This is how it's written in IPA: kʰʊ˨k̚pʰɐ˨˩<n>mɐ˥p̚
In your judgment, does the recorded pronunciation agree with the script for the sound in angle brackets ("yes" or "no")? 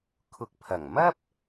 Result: no